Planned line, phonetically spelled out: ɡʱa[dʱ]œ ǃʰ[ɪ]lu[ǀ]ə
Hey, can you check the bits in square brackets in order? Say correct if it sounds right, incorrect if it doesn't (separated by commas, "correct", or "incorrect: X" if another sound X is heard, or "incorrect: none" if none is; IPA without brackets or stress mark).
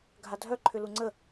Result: correct, incorrect: ʏ, incorrect: ŋ͡ǀ